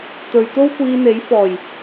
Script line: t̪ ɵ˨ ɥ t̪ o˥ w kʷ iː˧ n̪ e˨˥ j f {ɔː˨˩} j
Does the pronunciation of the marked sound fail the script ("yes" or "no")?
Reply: no